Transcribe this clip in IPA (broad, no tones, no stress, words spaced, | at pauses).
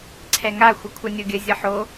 ǀʰɛŋa xʷʌkʷʰʌnʲoɡʲə zʲʌħo